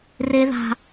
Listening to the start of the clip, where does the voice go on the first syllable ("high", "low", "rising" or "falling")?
high